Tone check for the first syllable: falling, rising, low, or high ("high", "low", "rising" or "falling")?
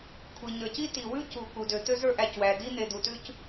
low